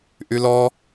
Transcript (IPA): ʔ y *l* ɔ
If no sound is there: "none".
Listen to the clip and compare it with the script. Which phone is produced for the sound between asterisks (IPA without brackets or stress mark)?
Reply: l